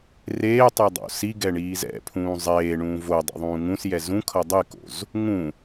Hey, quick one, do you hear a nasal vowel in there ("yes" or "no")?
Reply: yes